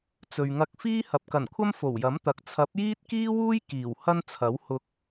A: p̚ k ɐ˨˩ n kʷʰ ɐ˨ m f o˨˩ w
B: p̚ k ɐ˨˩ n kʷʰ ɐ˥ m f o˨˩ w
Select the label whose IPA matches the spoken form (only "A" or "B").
B